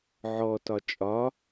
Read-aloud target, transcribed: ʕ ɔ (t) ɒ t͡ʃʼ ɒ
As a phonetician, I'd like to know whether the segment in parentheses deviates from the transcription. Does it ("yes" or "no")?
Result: no